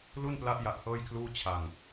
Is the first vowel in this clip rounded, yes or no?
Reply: yes